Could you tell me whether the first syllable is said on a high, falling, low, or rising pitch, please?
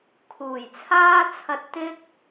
low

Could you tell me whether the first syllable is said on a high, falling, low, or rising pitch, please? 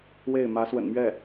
falling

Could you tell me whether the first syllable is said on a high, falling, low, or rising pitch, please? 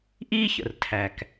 high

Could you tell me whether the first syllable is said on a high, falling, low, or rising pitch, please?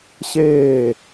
falling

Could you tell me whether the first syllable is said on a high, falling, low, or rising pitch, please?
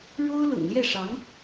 high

